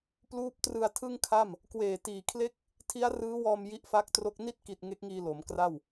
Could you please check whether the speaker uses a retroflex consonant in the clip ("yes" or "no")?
no